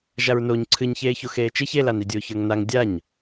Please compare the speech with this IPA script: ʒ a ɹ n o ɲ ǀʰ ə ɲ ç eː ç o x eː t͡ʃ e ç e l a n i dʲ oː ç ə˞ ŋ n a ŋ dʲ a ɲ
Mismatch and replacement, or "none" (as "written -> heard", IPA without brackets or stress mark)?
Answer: ə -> ɨ